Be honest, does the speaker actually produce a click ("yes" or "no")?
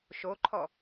yes